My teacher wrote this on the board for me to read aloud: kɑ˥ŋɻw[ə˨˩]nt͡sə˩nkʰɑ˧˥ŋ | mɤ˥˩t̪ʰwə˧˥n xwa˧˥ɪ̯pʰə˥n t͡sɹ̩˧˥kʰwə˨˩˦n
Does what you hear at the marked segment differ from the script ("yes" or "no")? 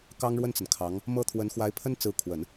yes